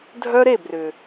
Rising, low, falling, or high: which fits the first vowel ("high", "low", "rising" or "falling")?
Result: high